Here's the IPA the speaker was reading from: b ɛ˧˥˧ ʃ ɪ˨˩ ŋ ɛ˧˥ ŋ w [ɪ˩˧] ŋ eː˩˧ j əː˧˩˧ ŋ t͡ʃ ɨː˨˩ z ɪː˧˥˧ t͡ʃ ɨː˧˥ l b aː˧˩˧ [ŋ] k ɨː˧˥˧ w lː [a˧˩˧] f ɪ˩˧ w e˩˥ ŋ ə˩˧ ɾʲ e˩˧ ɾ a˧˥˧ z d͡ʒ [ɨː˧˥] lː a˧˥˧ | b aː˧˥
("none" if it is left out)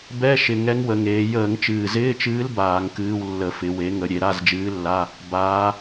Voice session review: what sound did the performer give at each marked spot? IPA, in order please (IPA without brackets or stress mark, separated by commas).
ə˩˧, ŋ, ə˧˩˧, ɨː˧˥